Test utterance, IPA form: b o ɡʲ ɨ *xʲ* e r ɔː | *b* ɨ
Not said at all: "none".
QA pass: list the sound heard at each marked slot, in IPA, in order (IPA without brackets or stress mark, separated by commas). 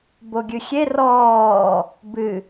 xʲ, b